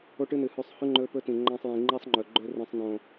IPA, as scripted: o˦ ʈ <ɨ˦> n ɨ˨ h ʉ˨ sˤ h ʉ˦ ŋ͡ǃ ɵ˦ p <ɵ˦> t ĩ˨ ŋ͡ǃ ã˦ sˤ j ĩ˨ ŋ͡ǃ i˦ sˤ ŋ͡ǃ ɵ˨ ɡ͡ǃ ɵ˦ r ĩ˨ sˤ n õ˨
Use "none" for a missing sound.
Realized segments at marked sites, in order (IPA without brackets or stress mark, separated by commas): ɨ˦, ɵ˦